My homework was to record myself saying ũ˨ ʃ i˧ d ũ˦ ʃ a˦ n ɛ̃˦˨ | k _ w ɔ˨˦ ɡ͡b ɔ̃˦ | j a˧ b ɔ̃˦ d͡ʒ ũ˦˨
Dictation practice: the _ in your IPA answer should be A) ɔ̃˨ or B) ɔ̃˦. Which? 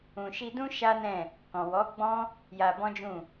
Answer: A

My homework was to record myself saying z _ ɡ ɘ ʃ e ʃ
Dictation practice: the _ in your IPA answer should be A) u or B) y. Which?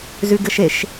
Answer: B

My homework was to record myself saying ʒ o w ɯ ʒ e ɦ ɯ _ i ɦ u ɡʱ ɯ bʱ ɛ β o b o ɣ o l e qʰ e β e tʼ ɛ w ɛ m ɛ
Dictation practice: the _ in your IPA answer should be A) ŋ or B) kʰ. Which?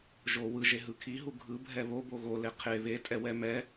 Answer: B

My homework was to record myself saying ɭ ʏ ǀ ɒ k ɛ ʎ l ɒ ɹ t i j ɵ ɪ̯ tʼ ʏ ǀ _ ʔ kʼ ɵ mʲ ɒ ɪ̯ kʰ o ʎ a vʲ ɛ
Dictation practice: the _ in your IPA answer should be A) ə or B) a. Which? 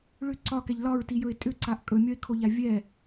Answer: B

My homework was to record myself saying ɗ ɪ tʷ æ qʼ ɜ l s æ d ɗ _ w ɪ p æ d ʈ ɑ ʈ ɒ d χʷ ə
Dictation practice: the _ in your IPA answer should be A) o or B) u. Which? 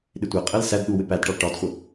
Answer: B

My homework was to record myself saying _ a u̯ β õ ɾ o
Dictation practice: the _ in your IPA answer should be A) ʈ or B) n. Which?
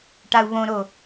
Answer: A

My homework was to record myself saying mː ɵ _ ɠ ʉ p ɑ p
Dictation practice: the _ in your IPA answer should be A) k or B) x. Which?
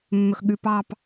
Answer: B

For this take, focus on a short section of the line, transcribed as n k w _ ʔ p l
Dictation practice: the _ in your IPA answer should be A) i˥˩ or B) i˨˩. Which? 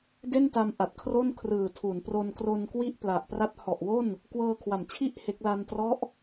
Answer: A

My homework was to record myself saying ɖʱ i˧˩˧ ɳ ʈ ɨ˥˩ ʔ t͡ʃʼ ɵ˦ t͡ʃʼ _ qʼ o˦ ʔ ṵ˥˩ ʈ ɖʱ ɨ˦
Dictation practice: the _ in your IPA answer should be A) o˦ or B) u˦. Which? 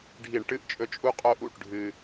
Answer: B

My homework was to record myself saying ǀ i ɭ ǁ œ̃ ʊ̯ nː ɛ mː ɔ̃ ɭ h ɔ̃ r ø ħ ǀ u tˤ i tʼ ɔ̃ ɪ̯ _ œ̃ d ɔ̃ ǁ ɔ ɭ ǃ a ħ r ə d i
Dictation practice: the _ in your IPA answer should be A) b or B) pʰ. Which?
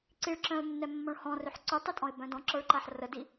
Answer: A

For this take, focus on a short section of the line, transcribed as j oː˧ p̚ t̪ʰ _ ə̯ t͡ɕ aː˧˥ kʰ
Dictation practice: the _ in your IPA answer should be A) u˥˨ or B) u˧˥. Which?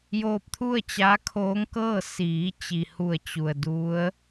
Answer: A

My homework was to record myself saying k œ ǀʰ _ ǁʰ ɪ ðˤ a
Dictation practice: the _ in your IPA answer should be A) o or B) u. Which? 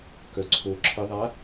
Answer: A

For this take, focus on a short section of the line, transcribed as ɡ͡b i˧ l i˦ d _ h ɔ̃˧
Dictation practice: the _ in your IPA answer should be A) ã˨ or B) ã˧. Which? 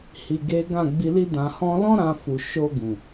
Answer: B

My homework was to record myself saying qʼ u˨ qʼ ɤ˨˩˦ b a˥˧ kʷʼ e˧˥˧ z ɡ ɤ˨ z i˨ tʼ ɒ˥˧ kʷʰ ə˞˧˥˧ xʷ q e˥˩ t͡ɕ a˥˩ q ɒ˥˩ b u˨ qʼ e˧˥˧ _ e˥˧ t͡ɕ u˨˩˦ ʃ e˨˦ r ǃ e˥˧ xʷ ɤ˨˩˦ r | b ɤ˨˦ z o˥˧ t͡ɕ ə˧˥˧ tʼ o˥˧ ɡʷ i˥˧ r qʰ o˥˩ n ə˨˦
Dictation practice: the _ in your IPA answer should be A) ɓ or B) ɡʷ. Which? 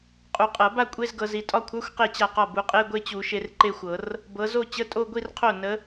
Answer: B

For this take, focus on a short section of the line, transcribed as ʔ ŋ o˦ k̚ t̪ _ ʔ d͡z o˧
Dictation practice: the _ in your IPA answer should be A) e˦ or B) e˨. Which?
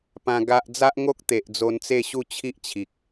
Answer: B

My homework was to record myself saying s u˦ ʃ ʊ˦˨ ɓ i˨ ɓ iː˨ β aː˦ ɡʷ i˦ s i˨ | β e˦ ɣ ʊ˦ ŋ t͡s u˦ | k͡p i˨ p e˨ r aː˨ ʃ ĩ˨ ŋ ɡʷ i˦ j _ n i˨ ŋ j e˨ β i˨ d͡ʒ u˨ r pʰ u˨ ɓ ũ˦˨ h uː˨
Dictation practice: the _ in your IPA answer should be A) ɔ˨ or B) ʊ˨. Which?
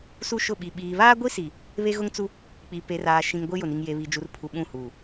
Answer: B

